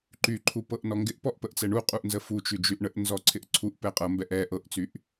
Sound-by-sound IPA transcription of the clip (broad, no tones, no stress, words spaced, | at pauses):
ǃyǃʰu pɤʔnɔŋɡɪʔpɔʔ pəʔt͡sɛɳuqʼuʔ nzəfut͡ʃy d͡ʒyʔɳəʔnzɔ ǀʰɪʔǀʰuʔpɛ qʼɤmbɛʔ ɛ ʔɤʔt͡syʔ